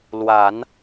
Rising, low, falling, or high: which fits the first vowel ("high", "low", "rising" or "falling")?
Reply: low